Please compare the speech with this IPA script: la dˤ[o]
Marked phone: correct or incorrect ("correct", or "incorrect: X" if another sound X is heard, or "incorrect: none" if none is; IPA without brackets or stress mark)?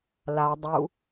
incorrect: u